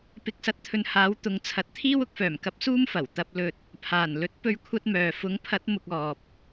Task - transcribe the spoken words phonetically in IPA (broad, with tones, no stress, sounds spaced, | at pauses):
p ɪ˨ k̚ s ɐ˨˥ t̚ t̪ʰ ɵ˨ n h aː˨˥ w t̪ ʊ˨ ŋ t͡sʰ ɐ˨˥ t̚ t̪ʰ iː˥ w ʊ˥ k̚ f œː˨˩ m k ɐ˧ p̚ s uː˥ m f ɐ˨˩ w t̪ ɐ˧ p̚ l ɵ˧ t̚ | pʰ aː˨˩ n l ɵ˨˥ t̚ p ɵ˧ ɥ kʷʰ ɐ˧ t̚ m œː˨ f ʊ˨˥ ŋ pʰ ɐ˨˥ t̚ m ʊ˨ k̚ ɔː˨ p̚